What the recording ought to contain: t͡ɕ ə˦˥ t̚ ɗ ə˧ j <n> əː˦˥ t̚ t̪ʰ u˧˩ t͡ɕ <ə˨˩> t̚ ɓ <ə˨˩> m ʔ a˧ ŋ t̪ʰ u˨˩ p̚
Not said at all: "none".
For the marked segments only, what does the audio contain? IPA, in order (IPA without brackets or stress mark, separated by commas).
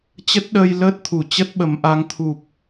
l, ə˦˥, ə˨˩